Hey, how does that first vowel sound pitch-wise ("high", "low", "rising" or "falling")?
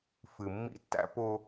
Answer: low